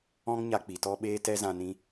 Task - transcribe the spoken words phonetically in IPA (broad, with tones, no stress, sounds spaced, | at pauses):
ɔ̃˦ ŋ ɲ a˧ k͡p i˨ t ɔ˦ ɓ eː˦ t ɛ˦ z ã˧ n ĩ˧